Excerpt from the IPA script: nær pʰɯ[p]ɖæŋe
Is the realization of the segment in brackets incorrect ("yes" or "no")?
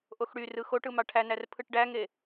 yes